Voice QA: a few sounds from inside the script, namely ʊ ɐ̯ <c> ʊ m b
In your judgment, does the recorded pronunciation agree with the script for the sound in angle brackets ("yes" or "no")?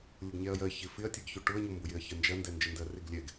no